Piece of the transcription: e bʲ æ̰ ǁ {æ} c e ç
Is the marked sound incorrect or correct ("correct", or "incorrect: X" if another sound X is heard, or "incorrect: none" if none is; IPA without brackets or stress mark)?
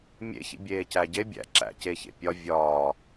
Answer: incorrect: æ̰